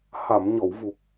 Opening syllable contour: low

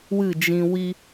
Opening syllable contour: falling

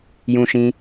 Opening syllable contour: high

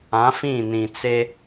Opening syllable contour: rising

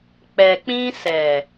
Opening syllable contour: low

